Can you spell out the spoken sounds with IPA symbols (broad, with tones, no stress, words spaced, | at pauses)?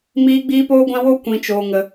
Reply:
miː˦ɡ͡biː˦poː˦ɡʷã˦ wo˦ kʷĩ˧t͡ʃoː˧ŋə˧